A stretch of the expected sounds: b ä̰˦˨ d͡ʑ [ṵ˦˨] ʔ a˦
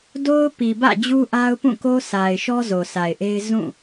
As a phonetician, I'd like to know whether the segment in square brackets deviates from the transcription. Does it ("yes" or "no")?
yes